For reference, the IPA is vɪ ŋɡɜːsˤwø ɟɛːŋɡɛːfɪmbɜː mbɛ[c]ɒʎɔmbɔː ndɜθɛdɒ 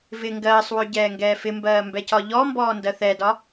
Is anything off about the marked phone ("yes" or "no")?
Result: no